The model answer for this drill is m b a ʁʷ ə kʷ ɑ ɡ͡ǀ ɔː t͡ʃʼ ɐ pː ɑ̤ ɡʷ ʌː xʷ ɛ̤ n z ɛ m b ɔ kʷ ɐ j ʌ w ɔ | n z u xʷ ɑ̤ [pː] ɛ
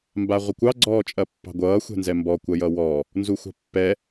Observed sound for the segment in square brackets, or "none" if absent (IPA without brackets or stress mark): pː